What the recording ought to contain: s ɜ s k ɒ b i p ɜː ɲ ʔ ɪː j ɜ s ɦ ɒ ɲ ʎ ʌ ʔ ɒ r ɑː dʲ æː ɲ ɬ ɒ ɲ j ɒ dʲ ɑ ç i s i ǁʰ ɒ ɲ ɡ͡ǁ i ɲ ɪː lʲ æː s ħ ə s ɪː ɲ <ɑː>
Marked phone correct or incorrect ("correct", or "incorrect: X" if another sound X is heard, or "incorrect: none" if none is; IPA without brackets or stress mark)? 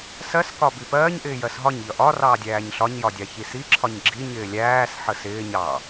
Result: correct